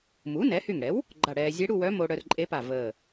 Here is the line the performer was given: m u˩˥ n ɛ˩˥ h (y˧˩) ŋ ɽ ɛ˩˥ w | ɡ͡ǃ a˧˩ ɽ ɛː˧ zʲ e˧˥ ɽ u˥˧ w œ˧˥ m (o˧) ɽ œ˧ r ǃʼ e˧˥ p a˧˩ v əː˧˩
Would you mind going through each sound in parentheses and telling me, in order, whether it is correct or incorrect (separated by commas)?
correct, correct